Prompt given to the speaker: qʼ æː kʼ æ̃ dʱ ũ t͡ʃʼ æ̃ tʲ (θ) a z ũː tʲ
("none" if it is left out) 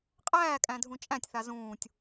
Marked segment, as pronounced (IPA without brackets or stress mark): θ